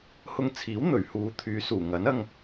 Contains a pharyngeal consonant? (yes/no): no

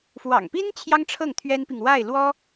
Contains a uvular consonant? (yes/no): no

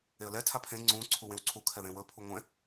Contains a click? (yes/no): yes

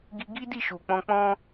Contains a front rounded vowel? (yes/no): no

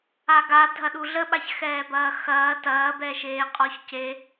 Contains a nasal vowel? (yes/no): no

